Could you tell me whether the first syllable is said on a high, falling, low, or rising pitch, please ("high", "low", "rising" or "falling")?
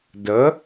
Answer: rising